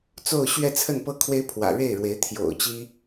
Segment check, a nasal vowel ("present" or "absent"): absent